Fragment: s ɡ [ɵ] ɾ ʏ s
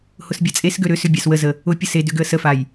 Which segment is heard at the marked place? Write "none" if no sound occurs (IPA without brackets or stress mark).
ø